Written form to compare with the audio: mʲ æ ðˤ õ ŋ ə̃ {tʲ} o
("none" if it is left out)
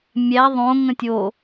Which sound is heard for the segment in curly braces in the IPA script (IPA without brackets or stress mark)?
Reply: tʲ